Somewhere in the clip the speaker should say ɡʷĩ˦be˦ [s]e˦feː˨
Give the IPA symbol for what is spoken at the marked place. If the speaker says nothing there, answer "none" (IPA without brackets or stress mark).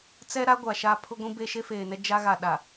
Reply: ʃ